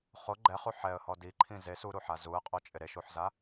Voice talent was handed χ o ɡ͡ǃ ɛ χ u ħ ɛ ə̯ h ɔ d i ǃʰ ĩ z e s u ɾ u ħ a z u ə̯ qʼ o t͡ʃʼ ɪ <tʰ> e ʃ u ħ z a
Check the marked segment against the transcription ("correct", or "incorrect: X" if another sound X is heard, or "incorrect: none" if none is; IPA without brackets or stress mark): incorrect: ɾ